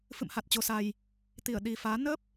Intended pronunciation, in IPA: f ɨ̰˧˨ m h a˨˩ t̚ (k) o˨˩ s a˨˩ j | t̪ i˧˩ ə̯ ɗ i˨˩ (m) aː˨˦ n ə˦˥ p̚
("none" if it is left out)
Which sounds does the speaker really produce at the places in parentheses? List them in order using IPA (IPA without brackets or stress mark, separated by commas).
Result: t͡ɕ, f